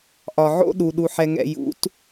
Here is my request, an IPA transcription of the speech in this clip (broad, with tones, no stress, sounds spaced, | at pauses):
ʔ ɒ˨ ʕ o̰˦ ɗ u˨ ɗ u˨ ħ ɛ˨ ŋ ɛ̰˨ j ṵ˨˦ t